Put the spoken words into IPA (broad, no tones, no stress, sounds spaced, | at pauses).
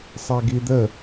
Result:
sˤ ɛ ɡ i d̪ ə